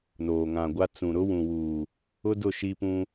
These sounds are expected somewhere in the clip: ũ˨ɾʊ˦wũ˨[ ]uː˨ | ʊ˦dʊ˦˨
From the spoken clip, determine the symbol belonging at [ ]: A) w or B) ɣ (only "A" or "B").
A